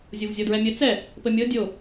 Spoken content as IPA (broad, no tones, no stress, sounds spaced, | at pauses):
zʲ o v zʲ ɔ d ɹ ɛ mʲ ɘ t͡s ɛ | p ɘ mʲ ɤ dʲ o